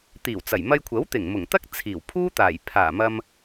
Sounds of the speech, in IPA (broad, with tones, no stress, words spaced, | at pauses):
t̪iː˨˩wt͡sɐ˨˩jmɐ˧jkʷʰɐ˨˥w t̪ɪ˨˩ŋmʊ˨˩ŋt̪ɐ˥k̚ t͡sʰiː˨˩wpʰuː˥t̪aː˨˩j pʰaː˨˩mɐ˧m